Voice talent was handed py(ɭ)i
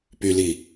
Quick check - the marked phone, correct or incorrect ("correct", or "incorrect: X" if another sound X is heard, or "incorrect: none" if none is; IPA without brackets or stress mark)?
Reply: incorrect: l